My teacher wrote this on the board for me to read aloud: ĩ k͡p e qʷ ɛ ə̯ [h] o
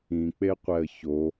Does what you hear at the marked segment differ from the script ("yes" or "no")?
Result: yes